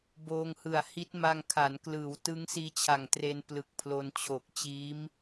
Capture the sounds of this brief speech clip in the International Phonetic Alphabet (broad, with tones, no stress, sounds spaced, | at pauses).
b oː˧ ŋ h ɯ˨˩ a̯ h i˦˥ t̚ m a˧ ŋ kʰ a˩˦ n k l ɯː˩˦ w t ɯ˦˥ ŋ s iː˦˥ t͡ɕʰ a˨˩ ŋ t r e˧ n p l ɯ˨˩ k̚ pʰ l o˧ n t͡ɕʰ o˨˩ k̚ t͡ɕ iː˦˥ m